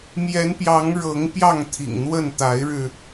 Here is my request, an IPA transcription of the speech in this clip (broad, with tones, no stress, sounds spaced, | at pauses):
m j ɛ˨˦ n p j ɑ˨˦ ŋ ɻ ɤ˨˦ ŋ p j ɑ˥˨ ŋ t̪ʰ ḭ˨˩ ŋ n̪ w ə˥˨ n t̪ a˨˦ ɪ̯ ɻ ɻ̩˧